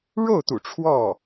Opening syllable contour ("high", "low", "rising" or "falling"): falling